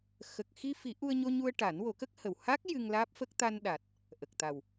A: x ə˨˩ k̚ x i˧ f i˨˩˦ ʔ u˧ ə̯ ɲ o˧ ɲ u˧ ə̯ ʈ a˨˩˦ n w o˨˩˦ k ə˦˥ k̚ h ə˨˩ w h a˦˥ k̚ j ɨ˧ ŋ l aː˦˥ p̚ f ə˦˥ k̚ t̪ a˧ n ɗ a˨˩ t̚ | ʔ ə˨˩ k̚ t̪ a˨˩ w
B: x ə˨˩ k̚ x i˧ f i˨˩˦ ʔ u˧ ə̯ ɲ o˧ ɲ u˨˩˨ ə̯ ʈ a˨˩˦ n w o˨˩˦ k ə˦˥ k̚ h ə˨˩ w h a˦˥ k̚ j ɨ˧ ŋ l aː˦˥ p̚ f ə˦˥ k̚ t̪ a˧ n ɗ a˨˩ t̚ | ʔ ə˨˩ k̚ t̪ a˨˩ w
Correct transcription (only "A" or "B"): A